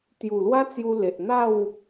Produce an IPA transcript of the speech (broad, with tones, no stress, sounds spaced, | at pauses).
t̪ j u˨˩ l w a˦ t͡s j u˧ l e˨ ʔ n̪ a˥˧ w